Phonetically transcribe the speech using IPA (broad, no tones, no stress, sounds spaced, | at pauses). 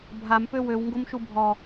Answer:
bʱ a m p ø w ø w ŋ ɡ o m ʃ u bʱ ɔ